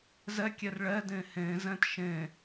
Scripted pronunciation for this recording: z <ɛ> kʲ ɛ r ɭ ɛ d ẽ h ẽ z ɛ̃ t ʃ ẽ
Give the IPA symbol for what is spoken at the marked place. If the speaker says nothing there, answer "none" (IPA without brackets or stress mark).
ɛ